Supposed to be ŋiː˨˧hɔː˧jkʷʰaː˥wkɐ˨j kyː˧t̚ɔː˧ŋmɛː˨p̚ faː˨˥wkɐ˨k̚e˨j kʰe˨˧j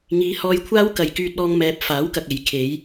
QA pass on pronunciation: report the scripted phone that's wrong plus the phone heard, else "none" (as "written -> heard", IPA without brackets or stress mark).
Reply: none